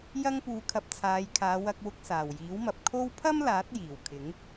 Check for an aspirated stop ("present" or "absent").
present